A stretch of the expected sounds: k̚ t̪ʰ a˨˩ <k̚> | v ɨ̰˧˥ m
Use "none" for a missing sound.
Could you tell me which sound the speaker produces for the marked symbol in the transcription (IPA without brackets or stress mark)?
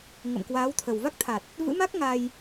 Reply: t̚